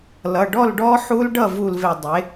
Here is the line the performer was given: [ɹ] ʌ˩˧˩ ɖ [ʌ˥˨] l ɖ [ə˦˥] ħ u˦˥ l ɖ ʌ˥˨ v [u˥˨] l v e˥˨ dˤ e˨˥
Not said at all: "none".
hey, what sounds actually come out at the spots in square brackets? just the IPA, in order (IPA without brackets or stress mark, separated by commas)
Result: l, ɔ˥˨, ɔ˦˥, u˥˨